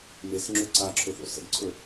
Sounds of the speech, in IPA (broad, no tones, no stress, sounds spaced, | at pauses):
m e s ŋ͡ǁ ɵ ǀ a ǁʰ ɵ θ o̰ s ə̰ ɡ ǀʰ ɵ